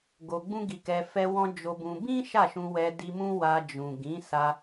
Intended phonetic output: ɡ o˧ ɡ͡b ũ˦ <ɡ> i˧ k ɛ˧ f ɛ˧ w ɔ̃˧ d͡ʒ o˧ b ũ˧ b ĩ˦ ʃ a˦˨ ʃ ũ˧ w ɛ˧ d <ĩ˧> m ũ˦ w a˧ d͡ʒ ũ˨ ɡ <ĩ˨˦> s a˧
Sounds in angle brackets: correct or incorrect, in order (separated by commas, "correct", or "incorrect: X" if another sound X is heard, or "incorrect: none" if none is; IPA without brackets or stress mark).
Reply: correct, incorrect: i˧, correct